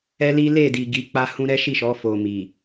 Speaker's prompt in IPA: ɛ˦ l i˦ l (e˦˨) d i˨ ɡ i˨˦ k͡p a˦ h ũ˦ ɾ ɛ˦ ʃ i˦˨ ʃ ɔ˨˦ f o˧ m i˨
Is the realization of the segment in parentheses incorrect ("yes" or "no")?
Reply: no